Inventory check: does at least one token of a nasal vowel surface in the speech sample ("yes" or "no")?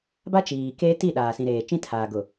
yes